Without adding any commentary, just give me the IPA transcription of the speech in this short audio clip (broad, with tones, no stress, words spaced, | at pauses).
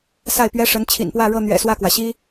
sa˥˩ɪ̯pɥɛ˥ʂə˧˥n t͡ɕʰḭ˨˩npwä˥˧ ɻɤ˥˩n̪ɥɛ̰˨˩ swä˥˩kwä˩ɕi˥